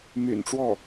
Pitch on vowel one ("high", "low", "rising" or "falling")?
low